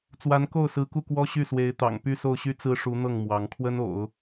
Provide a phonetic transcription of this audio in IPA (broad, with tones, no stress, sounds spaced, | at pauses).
t͡s w a˧˥ n k o˥˩ ʊ̯ s ɹ̩˧˥ k u˥˩ k w ɔ˥ ɕ y˥˩ s w e˧˥ ɪ̯ t̪ ɑ̰˨˩ ŋ p y˥˧ s o˥˩ ʊ̯ ɕ y˥ t͡s ɹ̩˥ ʂ u˧˥ n̪ ɤ˥˩ ŋ m w ɑ˧˥ ŋ kʰ w ə˥ n o̰˨˩˦ ʊ̯